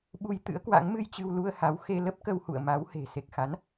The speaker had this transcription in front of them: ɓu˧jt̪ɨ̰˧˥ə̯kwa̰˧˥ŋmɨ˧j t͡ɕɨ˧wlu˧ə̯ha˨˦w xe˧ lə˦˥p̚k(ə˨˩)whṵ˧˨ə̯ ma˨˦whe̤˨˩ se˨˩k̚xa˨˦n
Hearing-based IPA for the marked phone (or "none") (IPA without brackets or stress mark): ə˧